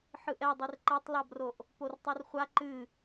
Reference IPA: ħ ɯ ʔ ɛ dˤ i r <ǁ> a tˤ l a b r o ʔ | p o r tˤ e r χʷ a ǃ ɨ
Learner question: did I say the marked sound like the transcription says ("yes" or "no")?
no